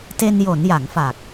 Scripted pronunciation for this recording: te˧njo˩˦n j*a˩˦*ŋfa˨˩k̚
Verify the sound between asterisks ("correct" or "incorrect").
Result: correct